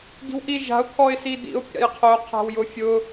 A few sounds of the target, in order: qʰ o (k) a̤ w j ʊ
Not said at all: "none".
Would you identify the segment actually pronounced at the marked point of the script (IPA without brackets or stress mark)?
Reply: qʰ